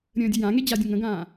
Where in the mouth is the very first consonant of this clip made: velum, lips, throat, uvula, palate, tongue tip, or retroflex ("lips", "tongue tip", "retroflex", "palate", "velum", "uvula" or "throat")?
tongue tip